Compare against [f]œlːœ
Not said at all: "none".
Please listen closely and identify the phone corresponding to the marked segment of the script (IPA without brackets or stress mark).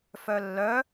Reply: f